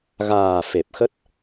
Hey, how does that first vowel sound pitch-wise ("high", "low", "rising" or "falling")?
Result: low